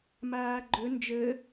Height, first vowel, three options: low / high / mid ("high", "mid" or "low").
low